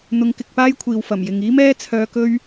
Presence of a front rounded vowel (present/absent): present